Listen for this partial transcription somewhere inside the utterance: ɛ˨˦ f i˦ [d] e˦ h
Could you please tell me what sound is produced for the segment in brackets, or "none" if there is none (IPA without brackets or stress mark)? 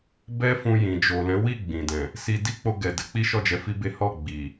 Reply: b